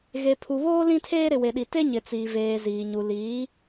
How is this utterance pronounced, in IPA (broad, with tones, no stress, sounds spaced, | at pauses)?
ɣ e˨ pʰ u˨ β oː˦ l ĩ˦ tʰ eː˦ ɾ ɪ˨ w e˨ ɗ i˨ t e˦ ɲ ɪ˨ t͡s iː˨ v eː˨ z iː˨ ɲ u˨ l iː˨˦